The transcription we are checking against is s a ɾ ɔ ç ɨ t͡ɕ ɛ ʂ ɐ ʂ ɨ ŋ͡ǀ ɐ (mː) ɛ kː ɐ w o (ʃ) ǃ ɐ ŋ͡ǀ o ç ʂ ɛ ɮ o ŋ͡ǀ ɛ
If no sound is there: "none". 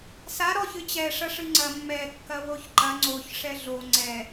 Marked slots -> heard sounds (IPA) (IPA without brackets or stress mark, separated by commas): mː, ç